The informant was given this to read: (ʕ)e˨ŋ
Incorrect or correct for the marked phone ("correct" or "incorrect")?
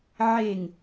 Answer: correct